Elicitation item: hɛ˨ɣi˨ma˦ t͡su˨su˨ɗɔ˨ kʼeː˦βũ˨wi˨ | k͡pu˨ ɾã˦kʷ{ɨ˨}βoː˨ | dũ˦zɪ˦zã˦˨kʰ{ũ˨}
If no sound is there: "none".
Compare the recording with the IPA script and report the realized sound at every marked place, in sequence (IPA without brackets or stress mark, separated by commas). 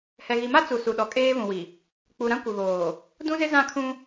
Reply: ɪ˨, ũ˦